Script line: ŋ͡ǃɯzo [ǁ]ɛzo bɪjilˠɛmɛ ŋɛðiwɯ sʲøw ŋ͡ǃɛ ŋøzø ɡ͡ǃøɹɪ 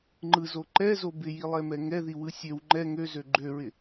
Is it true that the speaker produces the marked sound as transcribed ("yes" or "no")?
no